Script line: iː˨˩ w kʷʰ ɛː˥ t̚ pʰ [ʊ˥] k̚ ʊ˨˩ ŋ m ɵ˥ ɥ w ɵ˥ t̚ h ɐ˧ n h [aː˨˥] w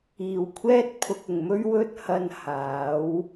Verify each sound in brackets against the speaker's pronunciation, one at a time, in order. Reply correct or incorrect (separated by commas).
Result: incorrect, correct